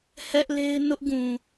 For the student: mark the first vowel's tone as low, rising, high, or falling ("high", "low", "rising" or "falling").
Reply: high